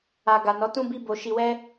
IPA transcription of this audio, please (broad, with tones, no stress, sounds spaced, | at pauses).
a˨ ɡ a˨ n ɔ˨˦ t ũ˦ b i˦ b o˧ ʃ i˧ w ɛ˦